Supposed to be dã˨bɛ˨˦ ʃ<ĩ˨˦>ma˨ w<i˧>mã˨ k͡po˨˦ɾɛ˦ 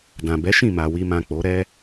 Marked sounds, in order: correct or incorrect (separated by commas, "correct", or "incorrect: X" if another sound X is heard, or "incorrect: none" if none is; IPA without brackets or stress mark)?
incorrect: ĩ˦˨, incorrect: i˨